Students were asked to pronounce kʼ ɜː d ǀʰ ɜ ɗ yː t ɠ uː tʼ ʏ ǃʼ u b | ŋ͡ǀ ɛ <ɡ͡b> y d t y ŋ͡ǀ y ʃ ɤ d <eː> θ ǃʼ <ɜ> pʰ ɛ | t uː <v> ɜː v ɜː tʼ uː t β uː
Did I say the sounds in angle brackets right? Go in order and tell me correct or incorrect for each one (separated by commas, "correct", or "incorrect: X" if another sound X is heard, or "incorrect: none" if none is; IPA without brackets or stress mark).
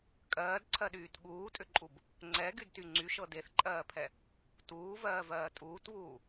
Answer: incorrect: ɡ, incorrect: e, incorrect: ɜː, correct